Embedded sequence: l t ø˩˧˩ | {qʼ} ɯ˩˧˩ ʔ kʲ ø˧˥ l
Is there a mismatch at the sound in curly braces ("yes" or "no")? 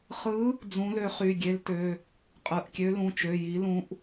no